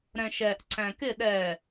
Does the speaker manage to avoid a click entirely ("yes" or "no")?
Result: no